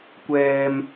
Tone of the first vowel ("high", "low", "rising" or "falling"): low